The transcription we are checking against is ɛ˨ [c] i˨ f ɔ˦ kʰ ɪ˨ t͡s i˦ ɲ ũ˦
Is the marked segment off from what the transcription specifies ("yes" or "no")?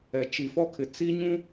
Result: yes